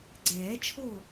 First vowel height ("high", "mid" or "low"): mid